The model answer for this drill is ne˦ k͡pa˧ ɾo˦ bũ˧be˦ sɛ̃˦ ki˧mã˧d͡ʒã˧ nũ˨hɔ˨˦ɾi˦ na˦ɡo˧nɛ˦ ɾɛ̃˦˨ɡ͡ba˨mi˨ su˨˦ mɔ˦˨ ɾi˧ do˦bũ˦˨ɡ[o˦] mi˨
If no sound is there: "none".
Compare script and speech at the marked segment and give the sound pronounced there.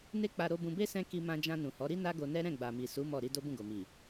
o˨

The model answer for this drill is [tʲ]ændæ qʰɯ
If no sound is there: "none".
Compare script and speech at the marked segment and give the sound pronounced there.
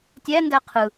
tʲ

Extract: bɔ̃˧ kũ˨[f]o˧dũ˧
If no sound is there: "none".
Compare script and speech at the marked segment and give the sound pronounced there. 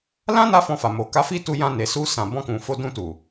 f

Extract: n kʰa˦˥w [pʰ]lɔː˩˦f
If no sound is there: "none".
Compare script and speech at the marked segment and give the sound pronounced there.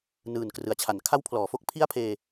pʰ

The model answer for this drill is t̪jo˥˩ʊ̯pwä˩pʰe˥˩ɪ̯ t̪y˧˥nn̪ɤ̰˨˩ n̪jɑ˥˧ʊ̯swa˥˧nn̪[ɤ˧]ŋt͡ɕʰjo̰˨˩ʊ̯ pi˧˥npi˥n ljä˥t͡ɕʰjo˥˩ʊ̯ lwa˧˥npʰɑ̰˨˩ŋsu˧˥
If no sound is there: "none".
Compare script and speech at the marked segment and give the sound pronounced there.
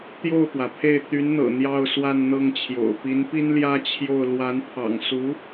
ɤ˥˩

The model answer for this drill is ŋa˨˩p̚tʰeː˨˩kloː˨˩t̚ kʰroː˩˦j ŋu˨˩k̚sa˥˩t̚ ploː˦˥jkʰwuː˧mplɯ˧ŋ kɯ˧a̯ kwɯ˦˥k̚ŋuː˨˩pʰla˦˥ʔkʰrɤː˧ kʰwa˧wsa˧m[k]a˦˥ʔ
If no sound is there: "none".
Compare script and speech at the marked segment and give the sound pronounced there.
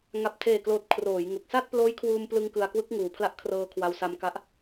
k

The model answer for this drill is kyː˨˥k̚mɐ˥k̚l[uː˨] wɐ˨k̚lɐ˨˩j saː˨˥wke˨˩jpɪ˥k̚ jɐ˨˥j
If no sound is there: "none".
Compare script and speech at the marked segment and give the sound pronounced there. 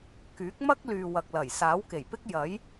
yː˨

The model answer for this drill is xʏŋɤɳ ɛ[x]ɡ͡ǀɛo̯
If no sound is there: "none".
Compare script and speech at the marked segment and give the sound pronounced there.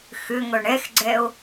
x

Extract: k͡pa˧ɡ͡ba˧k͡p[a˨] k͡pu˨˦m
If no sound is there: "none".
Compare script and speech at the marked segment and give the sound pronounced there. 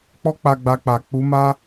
a˨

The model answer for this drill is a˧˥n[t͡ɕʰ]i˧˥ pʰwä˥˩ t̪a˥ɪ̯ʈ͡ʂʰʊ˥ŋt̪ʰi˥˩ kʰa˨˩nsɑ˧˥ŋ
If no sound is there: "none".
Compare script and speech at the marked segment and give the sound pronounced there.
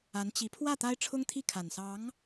t͡ɕ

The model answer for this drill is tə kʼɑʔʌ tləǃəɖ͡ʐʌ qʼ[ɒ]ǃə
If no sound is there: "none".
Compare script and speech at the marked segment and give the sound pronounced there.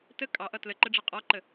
ɒ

